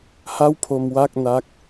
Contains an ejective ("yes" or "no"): no